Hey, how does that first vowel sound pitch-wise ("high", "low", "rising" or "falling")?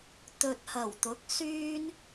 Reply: low